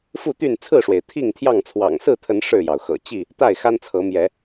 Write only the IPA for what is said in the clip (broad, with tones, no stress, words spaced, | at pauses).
fu˥˨t̪y˥˨n t͡sʰɹ̩˥˨ʂwe˩ɪ̯ t̪ʰi˥˨ŋt̪ʰjɑ˥˨ŋt͡sʰwɑ̰˨˩ŋ sɹ̩˥˨t̪ʰə˨˦n ʂɻ̩˥˨jɑ˩ʊ̯xɤ̰˨˩ t͡ɕi˥˨ | t̪a˥˨ɪ̯xa˦nt͡sʰɤ˨˦ mjɛ˨˦